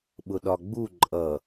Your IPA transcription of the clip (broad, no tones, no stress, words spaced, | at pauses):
ɓʊɗɒɡ͡bu ǃʼʌ